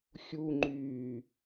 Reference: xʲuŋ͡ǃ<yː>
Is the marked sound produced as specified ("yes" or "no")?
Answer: yes